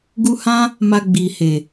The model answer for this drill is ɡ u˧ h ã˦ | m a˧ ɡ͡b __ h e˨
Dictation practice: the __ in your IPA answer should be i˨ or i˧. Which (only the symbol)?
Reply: i˨